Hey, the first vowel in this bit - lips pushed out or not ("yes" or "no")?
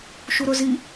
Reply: yes